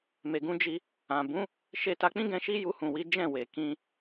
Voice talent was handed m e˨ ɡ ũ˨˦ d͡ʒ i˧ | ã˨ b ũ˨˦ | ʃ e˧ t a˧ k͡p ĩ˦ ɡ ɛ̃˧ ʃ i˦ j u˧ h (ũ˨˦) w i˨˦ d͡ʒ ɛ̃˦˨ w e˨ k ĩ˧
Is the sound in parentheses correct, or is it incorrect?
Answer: incorrect